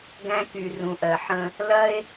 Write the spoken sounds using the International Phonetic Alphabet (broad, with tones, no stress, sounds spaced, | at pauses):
ɡ æ̃˦ k y˨ r ũ˩ ʔ ɜ˩ ħ ə̃˨ | l ɐ˥ e̯